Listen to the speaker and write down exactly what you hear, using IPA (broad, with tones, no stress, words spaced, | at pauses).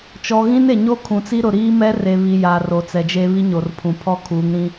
t͡ʃɔ˨ ɣĩ˦ne˨ɲo˦ kʰũ˨t͡si˦ɾʊ˨ ɾiː˦mɛ˦ re˨βi˨ ja˨ ro˨t͡sɛ˨d͡ʒe˦ βi˦ɲo˨rpʰũ˨ pʰɔ˦kʰuː˨˦ŋɾĩ˦